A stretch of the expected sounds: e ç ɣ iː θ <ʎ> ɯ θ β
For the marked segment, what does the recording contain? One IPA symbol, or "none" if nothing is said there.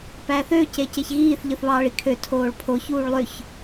ʎ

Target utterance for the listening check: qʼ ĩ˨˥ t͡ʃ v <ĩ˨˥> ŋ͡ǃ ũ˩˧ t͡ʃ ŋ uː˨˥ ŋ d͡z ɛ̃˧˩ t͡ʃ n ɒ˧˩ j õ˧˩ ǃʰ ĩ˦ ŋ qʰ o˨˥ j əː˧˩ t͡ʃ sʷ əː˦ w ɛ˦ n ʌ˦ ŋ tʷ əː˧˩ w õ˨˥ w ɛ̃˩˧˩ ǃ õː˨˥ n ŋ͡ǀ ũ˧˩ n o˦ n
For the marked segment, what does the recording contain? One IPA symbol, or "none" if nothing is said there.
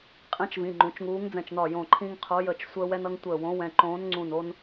ĩ˩˧˩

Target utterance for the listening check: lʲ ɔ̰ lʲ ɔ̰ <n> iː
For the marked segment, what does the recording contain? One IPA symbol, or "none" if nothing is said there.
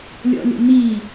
n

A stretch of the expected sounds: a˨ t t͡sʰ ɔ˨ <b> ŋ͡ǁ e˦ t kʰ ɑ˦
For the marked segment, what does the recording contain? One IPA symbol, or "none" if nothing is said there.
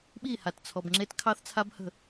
b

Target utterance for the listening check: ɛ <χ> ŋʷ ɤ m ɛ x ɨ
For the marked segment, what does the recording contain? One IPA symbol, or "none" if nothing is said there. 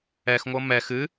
x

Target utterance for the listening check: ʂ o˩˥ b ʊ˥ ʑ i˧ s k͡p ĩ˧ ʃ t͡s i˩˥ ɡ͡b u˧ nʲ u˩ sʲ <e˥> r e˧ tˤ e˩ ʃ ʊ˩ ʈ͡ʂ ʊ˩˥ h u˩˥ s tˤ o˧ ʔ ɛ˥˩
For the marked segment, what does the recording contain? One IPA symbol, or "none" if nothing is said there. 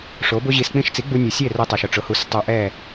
e˥˩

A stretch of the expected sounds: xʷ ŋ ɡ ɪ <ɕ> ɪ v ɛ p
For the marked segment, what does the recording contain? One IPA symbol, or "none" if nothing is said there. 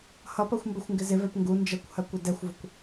z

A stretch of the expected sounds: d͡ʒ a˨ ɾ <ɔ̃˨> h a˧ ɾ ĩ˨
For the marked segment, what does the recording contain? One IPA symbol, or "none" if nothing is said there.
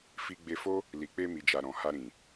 ɔ̃˨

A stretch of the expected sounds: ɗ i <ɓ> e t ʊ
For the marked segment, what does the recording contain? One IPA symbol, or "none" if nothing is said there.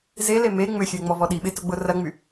ɓ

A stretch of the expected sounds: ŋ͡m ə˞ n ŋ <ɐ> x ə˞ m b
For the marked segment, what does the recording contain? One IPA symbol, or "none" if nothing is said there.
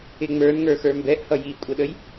ə˞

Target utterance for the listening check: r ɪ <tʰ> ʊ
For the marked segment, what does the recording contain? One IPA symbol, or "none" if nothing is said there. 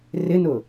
n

